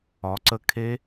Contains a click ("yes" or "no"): yes